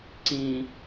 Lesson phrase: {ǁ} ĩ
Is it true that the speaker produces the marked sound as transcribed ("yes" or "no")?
no